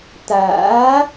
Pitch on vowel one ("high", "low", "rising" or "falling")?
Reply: rising